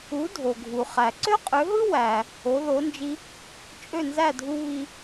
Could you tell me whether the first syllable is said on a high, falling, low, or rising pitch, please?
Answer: rising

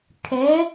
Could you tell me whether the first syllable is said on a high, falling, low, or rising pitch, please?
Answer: rising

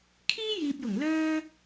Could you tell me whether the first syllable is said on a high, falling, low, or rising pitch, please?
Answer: high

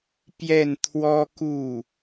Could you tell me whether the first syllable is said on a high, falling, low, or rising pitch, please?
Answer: falling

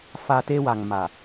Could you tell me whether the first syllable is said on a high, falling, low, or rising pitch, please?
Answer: low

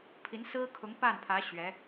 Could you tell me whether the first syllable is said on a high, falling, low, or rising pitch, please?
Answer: rising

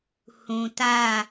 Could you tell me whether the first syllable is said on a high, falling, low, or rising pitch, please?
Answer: low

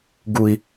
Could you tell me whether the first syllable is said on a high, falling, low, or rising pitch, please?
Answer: low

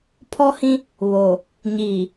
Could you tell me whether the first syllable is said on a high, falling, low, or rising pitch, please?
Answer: high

